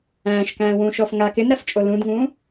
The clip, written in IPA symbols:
æ̃ːʃkæ̃ːwũː ʃɔfŋa kɪnɾæft͡ʃʼo lũdŋũː

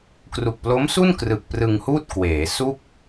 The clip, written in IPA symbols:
kru˨˩k̚plo˦˥msu˥˩n krɯ˨˩k̚prɯ˧ŋhuː˥˩t̚ kweː˩˦su˥˩k̚

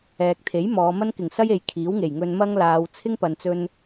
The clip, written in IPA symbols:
ɛː˨k̚t̪ʰe˨˥j mɔː˨˧ mɐ˥nkɪ˨˩ŋsɐ˥je˨j kʰiː˨˥wŋe˨˩jŋɵ˧n mɐ˥ŋlaː˨˧w t͡sʰɪ˥ŋpɐ˨nt͡sɵ˧n

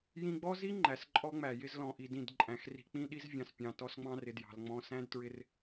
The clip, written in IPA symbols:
jĩ˧ɡ͡bɔ˦zi˦ ŋ͡ǃæ˨sǃʼɔ˦ŋ͡mæ˨jɪ˦z lɔ̃˨ʔi˨ dĩ˦˨dǃʼæ̃˨˦xri̤˧ k͡pĩ˦ɗi˦z vʲɑ̃˨spʲɑ̃˨ tɔ˧sŋ͡mɑ̃˧rɪ˨ djɑ̤˨l ŋ͡mɔ̃˧sæ̃˦dtɹɪ˧r

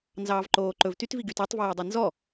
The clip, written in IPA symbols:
nzɑːvǃoːǃɵv tytviɡyt ɑtˤvæːdˤɑ nzɔ

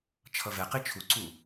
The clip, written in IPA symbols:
t͡ʃʰʌvɛqi t͡ʃʰuǀu

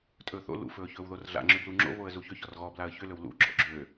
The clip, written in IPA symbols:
tʼɵːθo̰ lṵfɵː çɵːwðorɮa̰ŋ͡ǁʏ bluŋ͡ǁo̰ βoə̯zuçʏ çɔrɣɔblaə̯ çʏlɵw lṵ ɡ͡ǁɔ̰ɡ͡ǁø

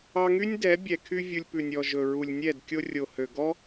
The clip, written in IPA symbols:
ɑ˧ŋy˦nʲdɛ˨˦ bʲɛ˨kʰy˧ vʲu˧lʲpʉ˨nʲ ɔ˨ ʒɵ˨ɹu˨lʲnʲɛ˦˨d kʲo˧rʲo˨hø˨ɡɔ˦

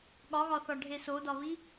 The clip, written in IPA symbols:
ɠɒɣɒθɒɖʱe sodɒβi

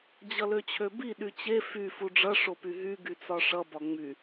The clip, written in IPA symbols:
d͡ʑʌløt͡ɕʰøbi ɗyt͡ɕe fy fuɖ͡ʐʌ ʂopyɦy ɡyt͡sɒʂʌ bɒŋ͡my

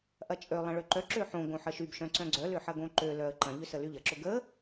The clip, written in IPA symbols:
ʔɐt͡ʃʼølˠɐ̃ ɭøǃœǁø ħõ ɡõħəʃybʃœ̃ ǀœ̃ɡ͡ǀœlʏ ħɐɡõǃølœə̯ ǃɐ̃ʎʏ səlyʎɐǁʊ ɡə

